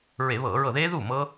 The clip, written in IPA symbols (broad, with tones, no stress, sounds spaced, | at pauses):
ɹ e˧˩˧ β ɤː˧˩˧ ɹ ɤ˧˩ ð eː˦˥ ð uː˥˩ m ɤ˦˥